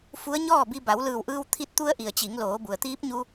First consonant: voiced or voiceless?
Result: voiceless